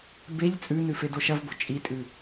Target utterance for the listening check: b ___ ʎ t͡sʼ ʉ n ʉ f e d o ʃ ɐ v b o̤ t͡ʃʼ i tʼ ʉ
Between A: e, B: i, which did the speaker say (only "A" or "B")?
A